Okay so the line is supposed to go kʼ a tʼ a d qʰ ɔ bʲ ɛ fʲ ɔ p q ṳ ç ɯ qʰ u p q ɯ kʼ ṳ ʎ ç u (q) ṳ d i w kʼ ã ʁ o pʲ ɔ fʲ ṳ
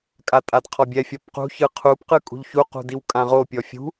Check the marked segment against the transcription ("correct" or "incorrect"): correct